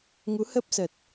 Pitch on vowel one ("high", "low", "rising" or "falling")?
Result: rising